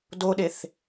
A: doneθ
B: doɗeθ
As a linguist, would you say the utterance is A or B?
B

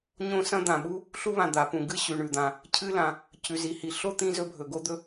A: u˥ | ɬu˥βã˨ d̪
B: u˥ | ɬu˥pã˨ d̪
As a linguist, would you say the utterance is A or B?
A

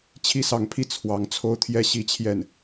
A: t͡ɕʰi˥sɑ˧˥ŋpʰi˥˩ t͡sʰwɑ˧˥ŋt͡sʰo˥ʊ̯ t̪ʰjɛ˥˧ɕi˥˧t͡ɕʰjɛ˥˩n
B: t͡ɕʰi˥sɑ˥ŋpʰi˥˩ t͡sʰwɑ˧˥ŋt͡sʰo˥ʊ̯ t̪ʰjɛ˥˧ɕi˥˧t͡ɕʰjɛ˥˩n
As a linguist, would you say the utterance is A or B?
A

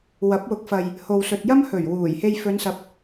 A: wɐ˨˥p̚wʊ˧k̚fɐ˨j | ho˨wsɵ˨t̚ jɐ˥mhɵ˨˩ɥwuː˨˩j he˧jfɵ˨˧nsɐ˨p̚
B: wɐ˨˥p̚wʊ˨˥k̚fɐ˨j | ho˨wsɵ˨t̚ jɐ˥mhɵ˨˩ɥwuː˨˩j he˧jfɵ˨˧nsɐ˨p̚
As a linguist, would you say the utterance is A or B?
B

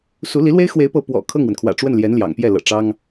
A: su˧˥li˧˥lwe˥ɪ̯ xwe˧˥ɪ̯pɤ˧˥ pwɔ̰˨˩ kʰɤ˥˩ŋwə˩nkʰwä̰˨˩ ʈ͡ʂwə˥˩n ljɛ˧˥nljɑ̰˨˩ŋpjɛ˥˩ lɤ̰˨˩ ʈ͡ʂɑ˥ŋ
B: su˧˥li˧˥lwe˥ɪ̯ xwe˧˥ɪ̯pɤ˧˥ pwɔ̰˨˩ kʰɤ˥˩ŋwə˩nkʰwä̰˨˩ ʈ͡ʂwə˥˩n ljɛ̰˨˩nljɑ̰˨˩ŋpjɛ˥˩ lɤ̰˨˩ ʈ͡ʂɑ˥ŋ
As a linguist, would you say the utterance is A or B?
A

